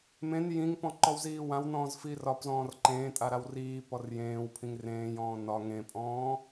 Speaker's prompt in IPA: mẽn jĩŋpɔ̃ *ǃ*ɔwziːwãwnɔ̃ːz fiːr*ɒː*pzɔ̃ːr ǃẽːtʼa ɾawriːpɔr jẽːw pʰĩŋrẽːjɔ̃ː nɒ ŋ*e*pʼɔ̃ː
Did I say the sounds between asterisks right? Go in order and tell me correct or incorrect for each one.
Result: correct, incorrect: ɒ, incorrect: ẽ

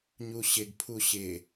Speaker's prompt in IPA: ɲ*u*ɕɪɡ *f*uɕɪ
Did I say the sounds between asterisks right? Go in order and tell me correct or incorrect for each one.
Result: correct, incorrect: pʰ

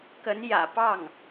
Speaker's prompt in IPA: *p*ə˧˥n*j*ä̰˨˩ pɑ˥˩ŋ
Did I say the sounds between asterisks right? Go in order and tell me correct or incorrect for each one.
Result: incorrect: k, correct

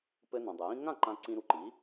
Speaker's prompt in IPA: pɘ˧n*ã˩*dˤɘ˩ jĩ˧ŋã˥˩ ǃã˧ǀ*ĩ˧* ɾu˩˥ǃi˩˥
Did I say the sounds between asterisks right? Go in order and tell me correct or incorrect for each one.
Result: correct, correct

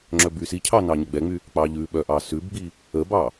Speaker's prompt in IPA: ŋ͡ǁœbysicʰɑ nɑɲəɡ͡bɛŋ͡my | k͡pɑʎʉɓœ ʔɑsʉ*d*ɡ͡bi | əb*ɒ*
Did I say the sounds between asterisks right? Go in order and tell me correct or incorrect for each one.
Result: incorrect: b, incorrect: ɑ

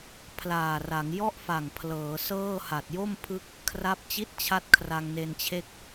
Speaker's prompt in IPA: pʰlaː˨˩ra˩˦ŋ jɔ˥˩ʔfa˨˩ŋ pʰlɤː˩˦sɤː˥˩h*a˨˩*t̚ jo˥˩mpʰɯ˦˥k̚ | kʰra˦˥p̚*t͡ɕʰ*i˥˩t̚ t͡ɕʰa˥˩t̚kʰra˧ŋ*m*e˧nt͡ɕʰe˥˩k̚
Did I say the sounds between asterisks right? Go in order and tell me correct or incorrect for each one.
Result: correct, incorrect: t͡ɕ, incorrect: n

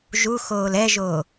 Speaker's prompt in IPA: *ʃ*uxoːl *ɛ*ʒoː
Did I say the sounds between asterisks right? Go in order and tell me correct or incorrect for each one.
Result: incorrect: ʒ, correct

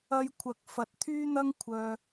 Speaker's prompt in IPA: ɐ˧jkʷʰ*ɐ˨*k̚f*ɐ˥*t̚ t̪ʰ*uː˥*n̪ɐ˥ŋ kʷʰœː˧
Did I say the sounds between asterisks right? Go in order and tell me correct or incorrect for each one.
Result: correct, incorrect: ɐ˨, incorrect: yː˥

